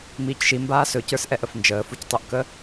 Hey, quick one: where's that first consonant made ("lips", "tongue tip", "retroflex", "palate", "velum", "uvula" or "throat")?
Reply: lips